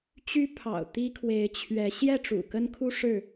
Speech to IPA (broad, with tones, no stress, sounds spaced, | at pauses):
t͡ɕ y˦ pʰ ɑ̰˨˩ ʊ̯ t̪ i˦ kʰ w e˨˦ ɪ̯ t͡ɕʰ ɥ ɛ˨˦ ɕ j ɛ˥˨ ʈ͡ʂ ṵ˨˩ k ə˦ n kʰ u˦ ʂ ɻ̩˥˨